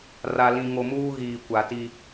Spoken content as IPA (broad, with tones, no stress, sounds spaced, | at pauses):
r a˨ l ĩ˨ ŋ o˨ m uː˦ ɣ iː˨ kʷ a˨ t i˦